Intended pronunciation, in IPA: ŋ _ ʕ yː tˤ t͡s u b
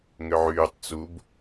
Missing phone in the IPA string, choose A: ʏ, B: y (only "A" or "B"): A